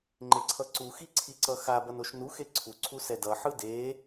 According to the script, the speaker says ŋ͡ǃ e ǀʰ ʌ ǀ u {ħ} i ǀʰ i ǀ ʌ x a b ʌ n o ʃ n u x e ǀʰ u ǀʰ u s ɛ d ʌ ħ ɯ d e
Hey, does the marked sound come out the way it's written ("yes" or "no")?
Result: no